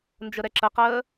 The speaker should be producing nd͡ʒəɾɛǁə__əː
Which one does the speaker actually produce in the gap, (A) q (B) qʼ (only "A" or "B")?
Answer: A